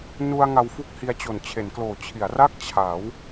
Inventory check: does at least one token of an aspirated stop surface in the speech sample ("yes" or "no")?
yes